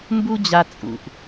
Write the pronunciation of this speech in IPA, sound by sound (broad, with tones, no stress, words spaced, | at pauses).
mbu˦d͡ʑa˧ t͡sʼṵ˨ʔ